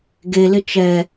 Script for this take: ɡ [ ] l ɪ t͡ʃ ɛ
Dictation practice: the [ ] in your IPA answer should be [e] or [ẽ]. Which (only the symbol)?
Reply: e